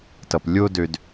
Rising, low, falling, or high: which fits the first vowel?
low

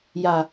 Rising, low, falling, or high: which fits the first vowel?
low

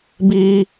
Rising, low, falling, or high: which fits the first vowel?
high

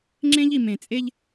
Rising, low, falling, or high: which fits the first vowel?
high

